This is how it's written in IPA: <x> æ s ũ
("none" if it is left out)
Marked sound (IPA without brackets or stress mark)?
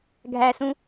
ɡʱ